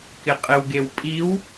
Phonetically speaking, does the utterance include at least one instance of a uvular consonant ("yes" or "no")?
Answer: yes